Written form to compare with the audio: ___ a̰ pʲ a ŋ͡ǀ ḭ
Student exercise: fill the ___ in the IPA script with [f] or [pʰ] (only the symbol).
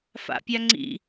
f